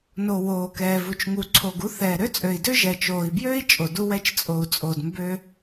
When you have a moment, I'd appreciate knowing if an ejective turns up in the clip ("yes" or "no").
yes